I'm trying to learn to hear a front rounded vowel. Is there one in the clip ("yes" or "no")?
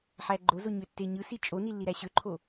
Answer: yes